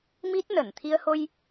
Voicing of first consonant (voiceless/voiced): voiced